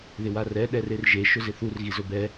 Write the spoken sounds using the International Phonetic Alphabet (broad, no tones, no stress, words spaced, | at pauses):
ðɪwarɛ ɗɛrerʒe ʃʊzɪθur ɣizʊbɛ